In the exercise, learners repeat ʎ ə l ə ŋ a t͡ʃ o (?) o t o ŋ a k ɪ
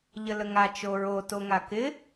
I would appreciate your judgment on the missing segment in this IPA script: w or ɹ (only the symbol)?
ɹ